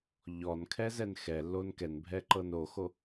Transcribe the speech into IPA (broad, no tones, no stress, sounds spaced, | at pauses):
ʎ ɔ n kʰ ɛ z ɛ n x ɛ lː o n k ɛ n bʱ ɛ ǃ ɤ n o x o